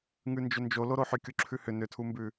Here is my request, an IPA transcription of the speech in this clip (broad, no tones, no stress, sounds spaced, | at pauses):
ŋ ʉ n d͡ʒ ʏ n d͡ʒ o l o ɾ o ħ ʏ kʲ u ǁʰ ʉ h ʏ n ʏ tʰ u m b ʉ